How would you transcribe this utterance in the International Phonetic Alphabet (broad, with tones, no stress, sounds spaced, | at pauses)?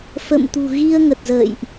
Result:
f ə̰˧˨ m t̪ ṳ˨˩ ɣ i˧ ə̯ ŋ ə˨˩ t̚ z ə̰ː˧˨ j ʔ